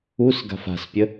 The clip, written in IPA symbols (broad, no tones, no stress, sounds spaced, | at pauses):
u s ɡ a̤ f a̤ s pʲ ə